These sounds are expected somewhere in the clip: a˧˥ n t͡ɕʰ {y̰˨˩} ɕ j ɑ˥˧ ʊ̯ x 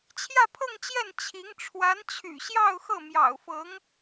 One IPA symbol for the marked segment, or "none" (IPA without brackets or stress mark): y̰˨˩